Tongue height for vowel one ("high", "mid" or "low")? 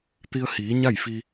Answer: high